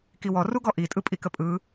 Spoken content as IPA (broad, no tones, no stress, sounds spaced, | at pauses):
k i w ɔ r u ɡ ɔ ʔ i tʼ ɯ pʼ i k ə pʼ ɯ